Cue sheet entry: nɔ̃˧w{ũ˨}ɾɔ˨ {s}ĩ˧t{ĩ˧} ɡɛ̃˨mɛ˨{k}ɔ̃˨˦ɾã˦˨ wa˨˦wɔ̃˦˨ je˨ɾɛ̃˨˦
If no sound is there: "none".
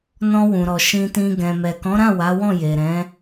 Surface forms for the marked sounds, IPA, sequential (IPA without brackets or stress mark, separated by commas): ũ˨, ʃ, ĩ˧, k